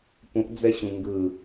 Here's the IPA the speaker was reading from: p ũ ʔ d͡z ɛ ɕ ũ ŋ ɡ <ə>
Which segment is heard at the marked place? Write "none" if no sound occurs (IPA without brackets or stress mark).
ɯ